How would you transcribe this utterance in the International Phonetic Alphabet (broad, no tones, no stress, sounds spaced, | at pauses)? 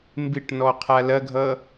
m b ɪ ʈ n ɔ qʰ a l ɐ ɡʱ ʌ